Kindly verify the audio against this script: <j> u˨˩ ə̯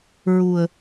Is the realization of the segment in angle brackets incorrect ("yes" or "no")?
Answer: yes